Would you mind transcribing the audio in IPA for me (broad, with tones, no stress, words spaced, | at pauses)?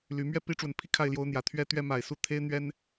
ly˨˦ mɥɛ˥˨pi˦ʈ͡ʂwə˨˩npʰi˥˨ kʰa˥˨ɪ̯ljo˦ʊ̯n̪jä˨˩ t̪ʰɥɛ˦t̪ɥɛ˦ ma˨˩ɪ̯su˥˨ t̪ʰe˦ɪ̯n̪ɥɛ˦n